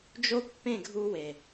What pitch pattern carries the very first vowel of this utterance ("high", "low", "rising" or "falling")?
high